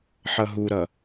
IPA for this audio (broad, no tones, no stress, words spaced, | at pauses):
ħʌɦuɾʌ